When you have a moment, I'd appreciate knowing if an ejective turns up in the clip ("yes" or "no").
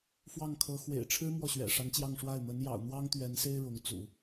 no